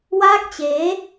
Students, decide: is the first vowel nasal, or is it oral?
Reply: oral